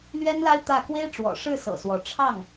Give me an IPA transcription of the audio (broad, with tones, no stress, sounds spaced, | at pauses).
l ɥ ɛ˥ n l a˥ ɪ̯ t̪ ä˥˩ k w e˥ ɪ̯ ʈ͡ʂ w ɔ̰˨˩ ʂ ɻ̩˥˩ s ɤ̰˨˩ s w ɔ˧˥ ʈ͡ʂʰ ɑ˥˩ ŋ